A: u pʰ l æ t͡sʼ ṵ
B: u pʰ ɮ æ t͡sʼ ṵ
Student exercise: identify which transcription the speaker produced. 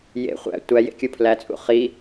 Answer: A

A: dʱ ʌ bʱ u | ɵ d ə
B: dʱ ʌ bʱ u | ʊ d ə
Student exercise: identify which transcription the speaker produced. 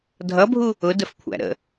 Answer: B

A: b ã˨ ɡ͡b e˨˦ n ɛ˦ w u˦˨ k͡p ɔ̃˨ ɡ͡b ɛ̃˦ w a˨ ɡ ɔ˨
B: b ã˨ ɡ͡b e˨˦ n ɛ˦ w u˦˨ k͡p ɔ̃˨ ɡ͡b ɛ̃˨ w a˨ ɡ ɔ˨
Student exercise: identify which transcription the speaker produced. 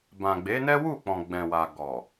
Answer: B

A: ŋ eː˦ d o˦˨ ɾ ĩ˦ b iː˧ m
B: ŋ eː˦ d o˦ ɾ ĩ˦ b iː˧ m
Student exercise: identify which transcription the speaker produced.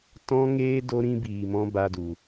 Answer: B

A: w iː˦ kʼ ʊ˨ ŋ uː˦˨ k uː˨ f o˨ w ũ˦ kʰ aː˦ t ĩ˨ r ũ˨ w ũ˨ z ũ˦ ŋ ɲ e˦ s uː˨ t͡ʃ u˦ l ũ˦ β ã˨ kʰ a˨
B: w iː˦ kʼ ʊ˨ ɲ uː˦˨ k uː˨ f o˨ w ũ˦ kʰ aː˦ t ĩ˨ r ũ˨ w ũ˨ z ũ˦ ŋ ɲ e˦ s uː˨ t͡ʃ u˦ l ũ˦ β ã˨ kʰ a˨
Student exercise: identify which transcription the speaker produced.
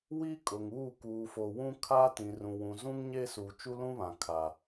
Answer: A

